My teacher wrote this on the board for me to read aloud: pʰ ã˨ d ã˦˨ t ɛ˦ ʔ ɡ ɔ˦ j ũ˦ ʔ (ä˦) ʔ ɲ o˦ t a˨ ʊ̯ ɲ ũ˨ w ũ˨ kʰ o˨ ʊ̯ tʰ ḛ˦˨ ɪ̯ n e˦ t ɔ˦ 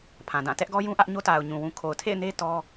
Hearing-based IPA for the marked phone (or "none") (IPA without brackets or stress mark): ä˦